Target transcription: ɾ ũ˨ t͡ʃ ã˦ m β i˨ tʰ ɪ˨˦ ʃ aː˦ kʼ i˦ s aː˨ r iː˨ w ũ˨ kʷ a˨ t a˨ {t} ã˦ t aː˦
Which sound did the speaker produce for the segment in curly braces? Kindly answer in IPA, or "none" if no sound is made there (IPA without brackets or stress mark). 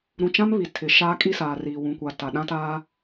ɗ